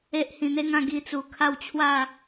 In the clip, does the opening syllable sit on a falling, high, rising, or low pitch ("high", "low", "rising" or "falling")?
high